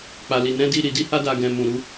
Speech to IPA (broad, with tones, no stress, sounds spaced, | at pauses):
k͡p a˨ l i˨ n ɛ̃˨˦ d i˦˨ ɾ i˧ d i˦ h a˦ d a˧ ɡ ɛ̃˧ m ũ˨ ɾ u˧